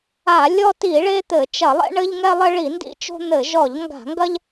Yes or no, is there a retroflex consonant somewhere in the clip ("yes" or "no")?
yes